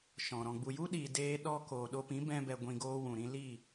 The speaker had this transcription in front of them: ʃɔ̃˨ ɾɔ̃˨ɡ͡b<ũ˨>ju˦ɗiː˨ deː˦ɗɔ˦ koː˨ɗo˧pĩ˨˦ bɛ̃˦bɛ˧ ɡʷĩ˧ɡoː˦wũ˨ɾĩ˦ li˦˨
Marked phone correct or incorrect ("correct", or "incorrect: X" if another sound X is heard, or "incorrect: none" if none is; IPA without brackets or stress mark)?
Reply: incorrect: u˨